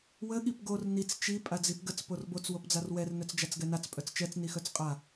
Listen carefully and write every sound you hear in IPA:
w ə ɠ i p ɡ o r n i t͡s t͡ʃ i pʼ a d͡z i p ɡ ə t͡s p o r b o t͡s w o p d͡z a r w ɛ r n œ t͡s d͡ʒ a t͡s ɡ ɛ n a t͡s pʼ œ t͡s t͡ʃ ɛ t͡s n i x œ t͡s qʼ a

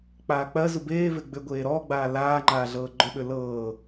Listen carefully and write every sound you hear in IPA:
k͡p aː k͡p ɜ z u b eː v e ɡ͡b ʏ ɡʷ eː ɾ ɔː ɡ͡b aː l aː ŋ͡ǃ aː ɮ ɤː ɡ͡ǃ ɵ ɓ ʏ l ɤː

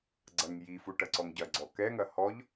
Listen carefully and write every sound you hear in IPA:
ɡ͡ǀ ɐ ŋ j i f u ʈ ɐ ǀ ɔ ŋ ɟ ɐ ɡ͡ǀ ɔ k ɛ ŋ ɐ h ɔ ʎ

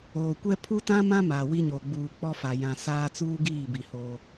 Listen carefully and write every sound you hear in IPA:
oː˨ kʷ ɛ˦ pʰ u˦ t ã˦ m ã˦ m aː˨ w i˦ ɲ oː˨ ɡ͡b uː˨ k͡p ɔ˦ f a˨ j ã˨ s aː˦ t͡s uː˦ ɡ iː˦˨ b i˨ h oː˦

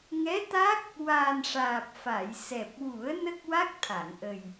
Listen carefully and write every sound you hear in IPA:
ŋ ɛ˧˥ t̪ a˦˥ k̚ | w aː˨˩ n ʂ aː˨˩ p̚ f a˨˩˨ j s ɛ˨˩ p̚ w u˨˩˦ ə̯ n ə˦˥ k̚ w a˦˥ k̚ t̪ʰ a˨˩˨ ŋ ʔ ə˨˩ j

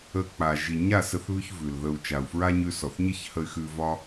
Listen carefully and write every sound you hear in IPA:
ə˧ k͡p a˨ ʒ i˨ ɲ a˦˨ s ə˧ θ β ʉ˧ ç v ʉ˨ l ð ə˧ u̯ t͡ʃ a˨ u̯ f ɹ a˦ ɲ ʉ˧ s ɔ˨ θ ɲ ə˦ ç h ə˧ y̯ x ʉ˧ v ɒ˦

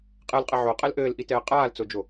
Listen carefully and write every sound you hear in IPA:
qʼ ɛ l qʼ ɘ ʕ o qʼ ɛ l ʔ ɘː l ʔ i t ɛː qʼ aː l t͡s o d͡ʒ o

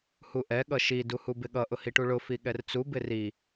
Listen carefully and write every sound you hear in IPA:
h u ʔ ɛ ɠ ʌ ʃ i d u h u b ɪ ɠ ʌ ʔ ʊ h i ʈ u ɭ ʊ f i ɠ ɛ r t͡s u b ɪ r i

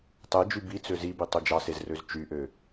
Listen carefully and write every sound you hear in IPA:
tˤ e d͡ʒ y b i t͡s ø z i b i tˤ ø d͡ʒ ɑ s e z r ø z t͡ʃ y ʔ ø

